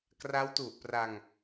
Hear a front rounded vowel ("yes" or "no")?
no